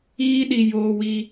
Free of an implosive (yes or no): no